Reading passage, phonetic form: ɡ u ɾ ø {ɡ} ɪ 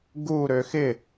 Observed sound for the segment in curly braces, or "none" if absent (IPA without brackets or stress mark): x